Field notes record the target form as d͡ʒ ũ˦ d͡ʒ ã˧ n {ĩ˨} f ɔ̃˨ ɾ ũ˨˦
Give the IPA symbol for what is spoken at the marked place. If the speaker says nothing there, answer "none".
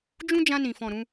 ĩ˨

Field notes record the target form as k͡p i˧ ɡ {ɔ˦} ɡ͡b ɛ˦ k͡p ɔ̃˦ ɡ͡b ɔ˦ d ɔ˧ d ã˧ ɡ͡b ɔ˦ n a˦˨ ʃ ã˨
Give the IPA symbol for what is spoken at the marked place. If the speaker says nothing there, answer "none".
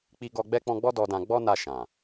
ɔ˧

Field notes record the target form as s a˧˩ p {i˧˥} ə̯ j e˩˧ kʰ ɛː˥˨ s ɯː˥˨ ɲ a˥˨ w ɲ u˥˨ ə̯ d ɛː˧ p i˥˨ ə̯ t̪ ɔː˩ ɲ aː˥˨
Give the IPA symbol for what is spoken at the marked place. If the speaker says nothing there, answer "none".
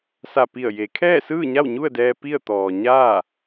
i˧˩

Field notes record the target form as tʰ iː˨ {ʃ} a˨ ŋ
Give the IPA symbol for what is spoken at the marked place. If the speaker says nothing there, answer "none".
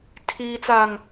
t͡s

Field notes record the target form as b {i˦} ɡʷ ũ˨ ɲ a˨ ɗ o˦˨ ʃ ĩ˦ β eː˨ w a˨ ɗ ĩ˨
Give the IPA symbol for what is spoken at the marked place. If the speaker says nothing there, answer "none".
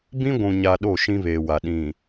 ĩ˦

